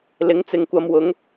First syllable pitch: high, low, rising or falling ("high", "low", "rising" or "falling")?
rising